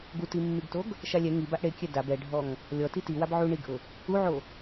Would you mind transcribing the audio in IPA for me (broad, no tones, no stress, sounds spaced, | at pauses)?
ɡ u t i mː i ɡ t o ɡ | ʃ a lʲ ɛ ŋ i b a ʔ ɽ e kʲ ɛ d a b ɛ ɖʱ ɔ ŋ | lʲ ɔ t i t i w a b ʕ u ɳ i ɡ ʔ ʊ | u ʕ o